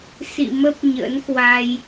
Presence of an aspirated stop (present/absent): absent